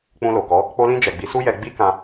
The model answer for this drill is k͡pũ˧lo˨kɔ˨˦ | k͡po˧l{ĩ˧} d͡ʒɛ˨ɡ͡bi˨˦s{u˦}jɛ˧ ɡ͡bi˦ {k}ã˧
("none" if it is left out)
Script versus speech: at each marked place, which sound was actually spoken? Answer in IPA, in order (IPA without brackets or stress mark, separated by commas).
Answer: ĩ˧, u˦, k